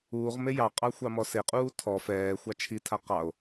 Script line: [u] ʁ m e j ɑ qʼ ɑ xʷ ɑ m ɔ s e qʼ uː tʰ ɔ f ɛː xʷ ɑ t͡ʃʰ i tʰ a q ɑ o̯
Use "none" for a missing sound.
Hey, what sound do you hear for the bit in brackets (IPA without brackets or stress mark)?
uː